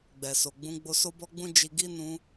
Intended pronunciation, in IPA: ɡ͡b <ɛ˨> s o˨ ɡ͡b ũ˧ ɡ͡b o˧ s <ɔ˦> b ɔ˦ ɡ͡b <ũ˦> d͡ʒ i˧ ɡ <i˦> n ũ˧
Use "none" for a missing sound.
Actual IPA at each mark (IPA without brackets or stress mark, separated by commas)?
ɛ˨, o˦, ũ˦, i˦